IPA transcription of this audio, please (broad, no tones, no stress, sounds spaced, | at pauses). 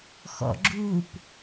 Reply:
x ɔ̰ ɡ͡ǁ uː p